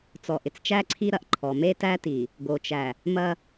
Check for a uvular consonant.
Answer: absent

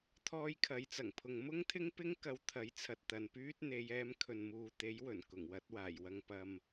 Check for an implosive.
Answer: absent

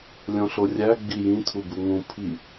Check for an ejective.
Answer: absent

